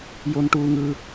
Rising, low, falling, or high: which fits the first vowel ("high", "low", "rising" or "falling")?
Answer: high